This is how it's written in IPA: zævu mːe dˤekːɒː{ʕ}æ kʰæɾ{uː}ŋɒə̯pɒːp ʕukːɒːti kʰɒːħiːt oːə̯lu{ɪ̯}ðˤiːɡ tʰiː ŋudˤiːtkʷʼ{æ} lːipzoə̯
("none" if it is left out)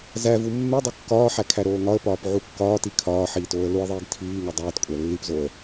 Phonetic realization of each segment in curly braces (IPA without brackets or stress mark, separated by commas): ħ, oː, ɪ̯, æ